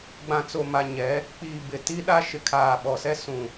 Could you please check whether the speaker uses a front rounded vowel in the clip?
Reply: no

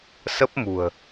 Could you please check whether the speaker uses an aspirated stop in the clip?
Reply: no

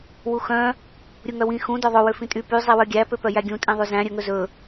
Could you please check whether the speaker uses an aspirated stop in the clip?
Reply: no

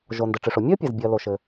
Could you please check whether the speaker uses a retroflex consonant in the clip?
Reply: yes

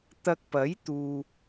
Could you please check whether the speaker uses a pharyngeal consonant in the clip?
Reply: no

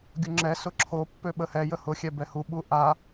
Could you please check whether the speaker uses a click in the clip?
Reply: yes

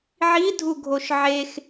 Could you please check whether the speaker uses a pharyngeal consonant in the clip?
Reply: yes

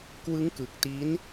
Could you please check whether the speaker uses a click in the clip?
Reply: no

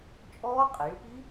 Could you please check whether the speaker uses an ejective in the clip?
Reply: yes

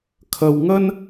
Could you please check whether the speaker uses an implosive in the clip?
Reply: no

